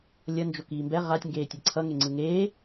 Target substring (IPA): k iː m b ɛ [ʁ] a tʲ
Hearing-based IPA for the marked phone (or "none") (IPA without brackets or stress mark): ʁ